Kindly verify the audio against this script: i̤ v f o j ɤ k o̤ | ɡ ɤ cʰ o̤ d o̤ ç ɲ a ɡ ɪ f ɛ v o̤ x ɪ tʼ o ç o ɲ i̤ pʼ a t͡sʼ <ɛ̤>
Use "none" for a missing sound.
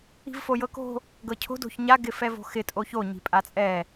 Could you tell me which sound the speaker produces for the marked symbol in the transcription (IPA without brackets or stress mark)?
ɛ